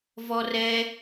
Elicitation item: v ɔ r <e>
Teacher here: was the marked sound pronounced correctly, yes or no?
no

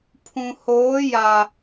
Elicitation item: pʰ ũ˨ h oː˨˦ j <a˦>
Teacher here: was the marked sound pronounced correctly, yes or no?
no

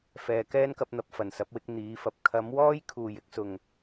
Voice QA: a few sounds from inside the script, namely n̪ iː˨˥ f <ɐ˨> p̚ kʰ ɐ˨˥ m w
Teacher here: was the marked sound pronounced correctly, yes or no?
yes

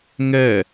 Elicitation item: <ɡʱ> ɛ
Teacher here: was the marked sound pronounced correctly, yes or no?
no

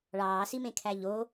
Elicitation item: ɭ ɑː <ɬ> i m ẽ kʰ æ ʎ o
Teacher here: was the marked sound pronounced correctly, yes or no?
no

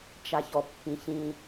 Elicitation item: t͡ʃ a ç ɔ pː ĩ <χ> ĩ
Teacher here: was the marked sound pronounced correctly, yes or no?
no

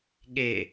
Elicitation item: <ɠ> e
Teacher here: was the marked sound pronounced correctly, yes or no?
yes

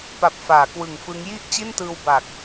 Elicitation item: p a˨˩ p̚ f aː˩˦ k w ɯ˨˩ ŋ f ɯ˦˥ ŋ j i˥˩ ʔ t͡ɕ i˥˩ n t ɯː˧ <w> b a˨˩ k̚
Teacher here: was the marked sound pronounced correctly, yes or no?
yes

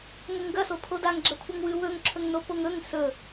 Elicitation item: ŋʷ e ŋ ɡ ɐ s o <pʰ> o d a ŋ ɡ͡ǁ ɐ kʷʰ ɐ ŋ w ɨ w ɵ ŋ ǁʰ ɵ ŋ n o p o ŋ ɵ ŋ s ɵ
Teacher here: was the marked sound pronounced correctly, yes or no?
yes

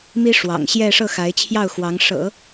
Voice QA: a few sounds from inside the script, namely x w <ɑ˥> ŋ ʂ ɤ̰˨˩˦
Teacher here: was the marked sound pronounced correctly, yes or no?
no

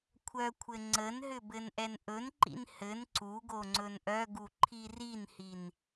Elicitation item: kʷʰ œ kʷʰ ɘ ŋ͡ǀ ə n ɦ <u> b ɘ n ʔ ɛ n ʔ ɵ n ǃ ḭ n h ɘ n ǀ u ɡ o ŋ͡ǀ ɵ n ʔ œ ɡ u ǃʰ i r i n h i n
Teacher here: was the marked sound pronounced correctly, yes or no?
no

